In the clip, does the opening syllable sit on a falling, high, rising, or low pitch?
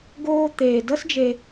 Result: high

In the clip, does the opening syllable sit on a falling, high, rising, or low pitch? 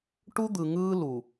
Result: high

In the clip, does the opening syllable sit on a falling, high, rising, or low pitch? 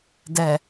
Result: low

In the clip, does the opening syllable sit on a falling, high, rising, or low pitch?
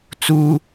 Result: high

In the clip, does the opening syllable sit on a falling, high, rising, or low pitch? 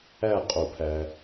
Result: falling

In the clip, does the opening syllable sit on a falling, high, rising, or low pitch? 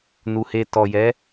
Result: low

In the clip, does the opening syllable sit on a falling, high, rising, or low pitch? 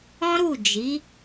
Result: high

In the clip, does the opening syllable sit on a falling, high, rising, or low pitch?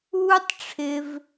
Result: high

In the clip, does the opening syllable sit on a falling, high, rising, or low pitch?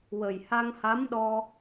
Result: low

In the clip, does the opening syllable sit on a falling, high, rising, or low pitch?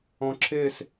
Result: low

